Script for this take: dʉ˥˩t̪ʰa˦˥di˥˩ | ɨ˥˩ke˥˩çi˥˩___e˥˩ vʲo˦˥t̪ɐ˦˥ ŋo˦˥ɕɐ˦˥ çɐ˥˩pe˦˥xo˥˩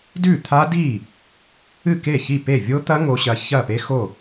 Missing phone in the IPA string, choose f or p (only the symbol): p